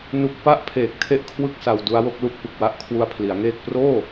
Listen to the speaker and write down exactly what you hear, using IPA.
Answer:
n u˨˩ k̚ p a˥˩ ʔ pʰ eː˨˩ k̚ tʰ e˥˩ ʔ kʰ w ɯ˥˩ k̚ s a˧ w d u˦˥ a̯ w o˦˥ k̚ l u˥˩ k̚ p ɯ˨˩ k̚ w a˥˩ ʔ kʰ w u˧ a̯ pʰ l i˩˦ a̯ ŋ eː˥˩ k̚ p r oː˥˩

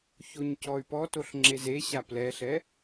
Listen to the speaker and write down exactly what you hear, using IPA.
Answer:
ç o ɲ c ɔ y̯ p ɔ t o ɬ ŋ͡ǁ e z e ɕ a p l ɛ ɬ ɛ

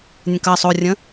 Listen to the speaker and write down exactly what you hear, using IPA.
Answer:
nʲ ə̃ k ɐ sˤ o rʲ ə̃

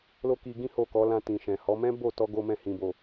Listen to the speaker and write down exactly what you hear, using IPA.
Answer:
l o˦ k i˧ ɡ ĩ˦ h o˦˨ k ɔ˨˦ l ã˧ t ĩ˨ ʃ ɛ̃˨ h ɔ˨˦ m ɛ̃˦ b o˦˨ t ɔ˧ ɡ o˦ m ɛ̃˦˨ h ĩ˨ b o˨

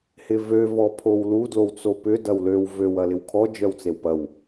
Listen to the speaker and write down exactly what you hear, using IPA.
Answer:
h ɪ v ø v ɔ pʰ o w l u d l o w t͡s o p ʏ d ɐ w l ø w v ø w ɐ l ɪ w kʰ ɔ d͡ʒ œ w t͡s e w p ɐ w

